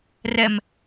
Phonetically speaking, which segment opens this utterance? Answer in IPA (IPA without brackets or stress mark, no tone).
r